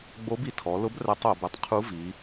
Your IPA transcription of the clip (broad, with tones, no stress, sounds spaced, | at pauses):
ɡ͡b o˧˥ b i˩ tʰ ɔ˩˧ l ʊ˧˥ b r ɛ˧˥ tˤ o˩˧ b e˧ tˤ qʰ u˧˥ v i˩˧